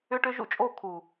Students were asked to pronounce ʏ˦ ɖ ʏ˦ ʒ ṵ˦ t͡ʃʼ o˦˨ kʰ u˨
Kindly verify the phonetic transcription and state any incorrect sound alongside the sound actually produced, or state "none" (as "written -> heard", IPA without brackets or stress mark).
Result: ɖ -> ʈ